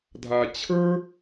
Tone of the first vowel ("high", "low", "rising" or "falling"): low